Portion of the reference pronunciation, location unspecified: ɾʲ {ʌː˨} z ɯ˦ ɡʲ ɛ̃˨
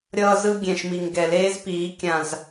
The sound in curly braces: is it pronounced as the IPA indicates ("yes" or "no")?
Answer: no